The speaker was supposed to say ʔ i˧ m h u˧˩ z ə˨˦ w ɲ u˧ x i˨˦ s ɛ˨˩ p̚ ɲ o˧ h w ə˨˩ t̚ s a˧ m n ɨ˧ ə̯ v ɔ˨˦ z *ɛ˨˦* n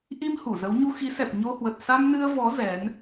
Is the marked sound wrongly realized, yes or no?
no